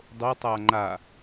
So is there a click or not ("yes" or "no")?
yes